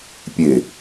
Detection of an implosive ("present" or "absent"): absent